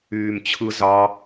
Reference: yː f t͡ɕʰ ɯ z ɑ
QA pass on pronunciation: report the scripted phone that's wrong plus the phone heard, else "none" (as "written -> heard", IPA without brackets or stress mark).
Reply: f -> m